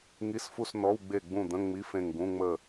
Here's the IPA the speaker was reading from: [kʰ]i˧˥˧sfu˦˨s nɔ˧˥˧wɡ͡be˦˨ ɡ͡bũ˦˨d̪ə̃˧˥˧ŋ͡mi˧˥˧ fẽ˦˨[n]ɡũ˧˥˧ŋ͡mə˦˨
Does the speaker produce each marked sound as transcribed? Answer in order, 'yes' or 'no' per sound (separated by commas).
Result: no, no